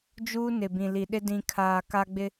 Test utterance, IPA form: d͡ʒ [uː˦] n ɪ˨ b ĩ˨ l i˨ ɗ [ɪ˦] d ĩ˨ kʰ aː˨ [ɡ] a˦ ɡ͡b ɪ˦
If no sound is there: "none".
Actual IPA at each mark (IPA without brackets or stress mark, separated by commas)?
uː˦, ɪ˦, k